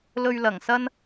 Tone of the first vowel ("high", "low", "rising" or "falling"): low